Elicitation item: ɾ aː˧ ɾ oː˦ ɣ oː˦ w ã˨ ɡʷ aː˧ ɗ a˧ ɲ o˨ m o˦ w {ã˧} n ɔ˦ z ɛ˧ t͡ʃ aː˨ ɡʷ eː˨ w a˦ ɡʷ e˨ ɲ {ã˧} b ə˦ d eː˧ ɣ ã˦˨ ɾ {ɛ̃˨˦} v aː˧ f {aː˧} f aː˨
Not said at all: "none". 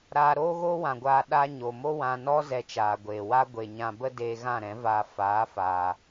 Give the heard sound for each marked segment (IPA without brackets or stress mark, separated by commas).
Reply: ã˧, ã˧, ɛ̃˨˦, aː˨˦